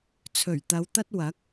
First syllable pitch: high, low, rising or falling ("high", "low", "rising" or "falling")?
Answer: low